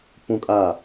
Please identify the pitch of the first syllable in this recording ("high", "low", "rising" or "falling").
high